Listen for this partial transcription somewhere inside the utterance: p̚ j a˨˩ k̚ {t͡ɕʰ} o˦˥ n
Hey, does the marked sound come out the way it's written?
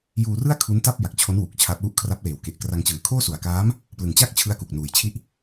yes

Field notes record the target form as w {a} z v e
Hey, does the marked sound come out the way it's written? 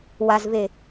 yes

